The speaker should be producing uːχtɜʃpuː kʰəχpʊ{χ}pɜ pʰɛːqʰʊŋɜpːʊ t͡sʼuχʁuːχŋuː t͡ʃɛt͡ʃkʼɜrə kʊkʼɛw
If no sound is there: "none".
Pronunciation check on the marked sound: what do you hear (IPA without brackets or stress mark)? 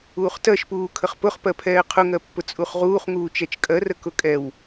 χ